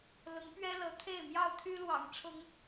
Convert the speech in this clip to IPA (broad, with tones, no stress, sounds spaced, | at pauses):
l ʊ˨˦ ŋ p ɥ ɛ˦ l ɤ˨˦ t̪ʰ e˥˨ ɪ̯ m j ɑ˥˨ ʊ̯ t̪ʰ y˦ l w ɑ̰˨˩ ŋ ʈ͡ʂʰ ʊ˨˦ ŋ